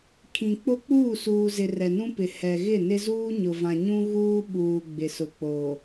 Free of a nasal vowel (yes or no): no